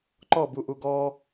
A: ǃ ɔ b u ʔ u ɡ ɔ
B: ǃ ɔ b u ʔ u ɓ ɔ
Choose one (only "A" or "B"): A